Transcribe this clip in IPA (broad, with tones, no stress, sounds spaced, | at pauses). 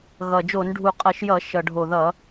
ɣ ʌ˨˩ d͡ʒ o˧˩˧ n ɖʱ u˨˩ qʼ ʌ˧˩˧ ʃ j ʌ˧˩˧ ʃ ʌ˨˩ ɖʱ o˨˩ ð ʌ˧˩˧